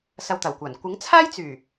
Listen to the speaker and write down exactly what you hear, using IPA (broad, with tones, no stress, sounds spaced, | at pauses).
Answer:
s ɐ˧ w t̪ ɐ˨˩ w kʷ aː˨˩ n kʷ ɪ˨˥ ŋ t͡sʰ aː˥ j t͡s yː˨˩